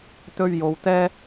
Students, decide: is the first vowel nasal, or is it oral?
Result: oral